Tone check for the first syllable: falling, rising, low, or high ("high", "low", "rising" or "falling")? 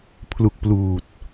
low